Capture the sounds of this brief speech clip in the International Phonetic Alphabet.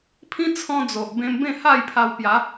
pʰĩ˦t͡sʰɔ̃˧d͡zo˨ʔ bẽ˧mbẽ˥˧ha˥˧jpʰa˧w pja˨˦

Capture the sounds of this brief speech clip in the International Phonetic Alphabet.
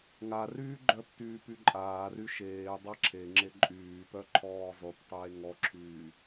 ŋaryː ɡ͡ǃœp tyːpyǃʼaːry ʃeː dˤaǁʰeŋ͡ǁe ǃʼyːpœ ǃʰɔːzˤyptˤeː ŋɔǁʰyː

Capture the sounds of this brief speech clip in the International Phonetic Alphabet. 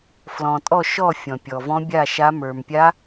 flɔ̃˨tʼɔ˥˧ʃɔ˥˧ fʲɔ̃˨pʲɔ˨ vɔ̃˦˥bʲa˥˧ʃa˦˥ mə˞˨mpʲa˦˥

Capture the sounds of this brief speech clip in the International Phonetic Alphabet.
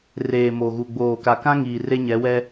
reː˨mo˨ɣu˨ ɡ͡boː˨ ka˨kã˦ŋiː˨ re˦ɲɛ˨˦wɛ˦

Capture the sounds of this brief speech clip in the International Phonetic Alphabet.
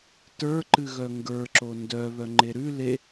tə˞ ǃɨɣœŋɡə˞ ǁondœ βœŋ͡ǃeɾʉ le

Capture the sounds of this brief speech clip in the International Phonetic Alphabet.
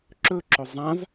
ǁɵǁɵ zˤãv

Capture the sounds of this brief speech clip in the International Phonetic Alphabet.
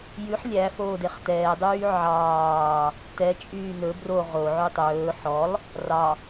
jʉħ lʲæfoːdeχ tɛːdˤyː ʕɑː | tɛt͡ʃʼyː nɵ bro ʁoʕy tˤɵː ħɔlˠ | rɑ

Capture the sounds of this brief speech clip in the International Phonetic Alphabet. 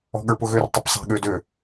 ɔ̤ɠə˞pʊɣør tˤəpsˤɛ̤ ɠødø

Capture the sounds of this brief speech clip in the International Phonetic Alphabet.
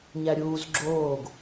ɲæɾʲuːz ɡ͡ǁoːɡ

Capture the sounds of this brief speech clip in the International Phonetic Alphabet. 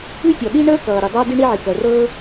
ʉ˥sʲɔ˩ ɗi˥ɳəː˥kʌː˩ ɾi˩dˤʌː˥ di˥ɳi˥ʕi˩ kɜ˩rɤː˥

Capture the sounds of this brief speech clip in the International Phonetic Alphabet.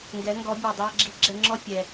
ŋɡɛ˧˥ŋɡɔ˧˥bʲɛ˧ dˤi˧ɐ̯ɡ͡ǁi˧ɡ͡ǁɛ˧ ŋ͡ǁɔ˥fʲɛ˧

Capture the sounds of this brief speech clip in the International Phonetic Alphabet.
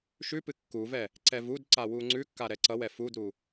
ʃʉpɨ kːuvɛ | ǀɛvudǀa wuŋ͡ǀʉkːa ɾɛǀʌwɛ fudɾu

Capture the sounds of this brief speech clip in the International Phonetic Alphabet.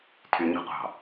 tʰyɲṳqʷɑ̤

